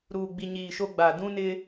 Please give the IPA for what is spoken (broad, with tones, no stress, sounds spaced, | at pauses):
ɾ uː˨ ɡ͡b i˨ ɲ iː˨ ʃ o˦ ɡ͡b a˨ d ũ˦ n ɪ˦